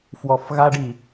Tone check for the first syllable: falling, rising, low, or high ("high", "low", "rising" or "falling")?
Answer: low